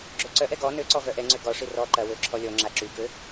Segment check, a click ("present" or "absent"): present